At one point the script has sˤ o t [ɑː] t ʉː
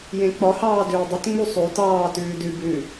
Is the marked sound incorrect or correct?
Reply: correct